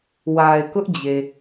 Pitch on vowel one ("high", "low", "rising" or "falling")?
low